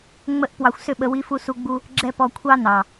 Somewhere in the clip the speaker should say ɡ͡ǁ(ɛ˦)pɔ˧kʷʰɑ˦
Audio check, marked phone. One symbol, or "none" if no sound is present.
ɛ˦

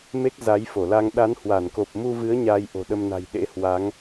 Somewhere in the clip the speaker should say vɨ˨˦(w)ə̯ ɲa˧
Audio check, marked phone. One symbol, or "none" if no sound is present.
none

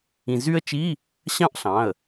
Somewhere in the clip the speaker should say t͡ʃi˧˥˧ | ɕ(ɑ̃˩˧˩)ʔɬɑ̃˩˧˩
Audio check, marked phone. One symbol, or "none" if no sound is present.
ɑ̃˦˥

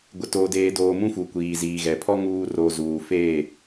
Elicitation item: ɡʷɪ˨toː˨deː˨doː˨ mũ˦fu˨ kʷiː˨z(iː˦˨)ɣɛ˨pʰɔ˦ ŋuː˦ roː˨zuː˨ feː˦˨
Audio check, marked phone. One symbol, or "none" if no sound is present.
iː˨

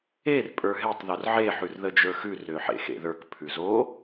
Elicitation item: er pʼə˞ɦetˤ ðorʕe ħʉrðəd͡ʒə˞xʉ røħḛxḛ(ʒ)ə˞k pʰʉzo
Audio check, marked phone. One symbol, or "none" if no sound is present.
ð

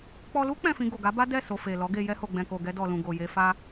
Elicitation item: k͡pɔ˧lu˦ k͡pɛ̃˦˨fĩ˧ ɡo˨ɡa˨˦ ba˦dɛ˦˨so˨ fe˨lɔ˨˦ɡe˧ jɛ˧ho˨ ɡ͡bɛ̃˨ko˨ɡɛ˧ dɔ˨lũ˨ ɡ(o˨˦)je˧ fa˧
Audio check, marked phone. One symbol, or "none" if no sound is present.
o˨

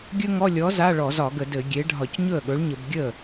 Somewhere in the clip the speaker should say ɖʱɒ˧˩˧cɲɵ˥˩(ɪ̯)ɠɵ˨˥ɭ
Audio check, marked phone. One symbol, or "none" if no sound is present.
ə̯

